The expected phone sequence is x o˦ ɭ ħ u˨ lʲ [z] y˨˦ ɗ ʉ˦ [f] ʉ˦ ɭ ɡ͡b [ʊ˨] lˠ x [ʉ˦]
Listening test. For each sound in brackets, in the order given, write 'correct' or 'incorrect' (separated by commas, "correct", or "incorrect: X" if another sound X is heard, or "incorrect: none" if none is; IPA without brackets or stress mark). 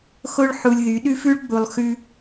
incorrect: ð, correct, incorrect: u˨, correct